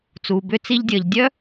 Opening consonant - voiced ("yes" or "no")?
no